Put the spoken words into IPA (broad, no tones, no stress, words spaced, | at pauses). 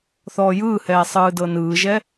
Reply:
θɔːjɯːhɛː sˤɯːdɤnɯːʒɛ